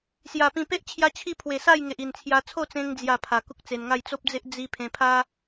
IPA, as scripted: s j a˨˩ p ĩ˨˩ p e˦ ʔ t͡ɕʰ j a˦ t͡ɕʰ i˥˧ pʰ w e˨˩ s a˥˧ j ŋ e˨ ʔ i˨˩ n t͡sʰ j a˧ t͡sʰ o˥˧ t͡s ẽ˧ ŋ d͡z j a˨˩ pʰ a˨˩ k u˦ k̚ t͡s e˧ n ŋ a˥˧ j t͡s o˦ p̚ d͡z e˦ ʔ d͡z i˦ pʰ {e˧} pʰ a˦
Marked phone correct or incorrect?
incorrect